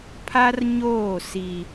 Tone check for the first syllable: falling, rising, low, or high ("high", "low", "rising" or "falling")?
high